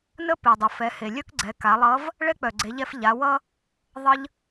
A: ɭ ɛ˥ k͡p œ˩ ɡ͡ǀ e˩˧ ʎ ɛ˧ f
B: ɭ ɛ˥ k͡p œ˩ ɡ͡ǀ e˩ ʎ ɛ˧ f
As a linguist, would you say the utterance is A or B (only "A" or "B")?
A